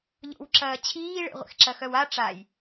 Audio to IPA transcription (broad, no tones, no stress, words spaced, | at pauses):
ʎo̰wǁɐː t͡ɕʰiːɭḛʁʷḛx ǁɐxœwa ʈ͡ʂaj